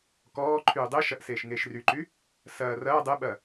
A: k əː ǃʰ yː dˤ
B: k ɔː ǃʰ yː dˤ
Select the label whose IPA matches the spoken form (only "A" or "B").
B